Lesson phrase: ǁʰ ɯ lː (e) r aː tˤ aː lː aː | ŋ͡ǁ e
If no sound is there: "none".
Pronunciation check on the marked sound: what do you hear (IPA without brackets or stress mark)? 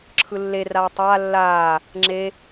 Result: e